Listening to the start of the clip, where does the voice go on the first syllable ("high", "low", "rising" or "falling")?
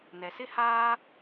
low